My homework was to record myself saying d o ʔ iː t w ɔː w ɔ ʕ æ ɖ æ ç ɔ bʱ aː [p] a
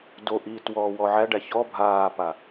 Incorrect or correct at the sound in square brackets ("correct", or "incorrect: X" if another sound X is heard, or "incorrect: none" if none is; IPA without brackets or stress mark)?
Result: correct